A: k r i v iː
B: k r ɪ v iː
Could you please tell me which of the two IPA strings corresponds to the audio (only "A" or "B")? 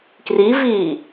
A